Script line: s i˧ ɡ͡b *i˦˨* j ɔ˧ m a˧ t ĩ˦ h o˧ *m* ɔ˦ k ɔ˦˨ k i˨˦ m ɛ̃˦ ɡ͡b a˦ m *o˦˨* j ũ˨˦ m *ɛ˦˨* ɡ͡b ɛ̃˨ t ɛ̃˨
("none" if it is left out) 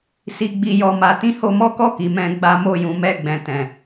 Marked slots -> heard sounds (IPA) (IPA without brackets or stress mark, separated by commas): i˧, m, o˦˨, ɛ˦˨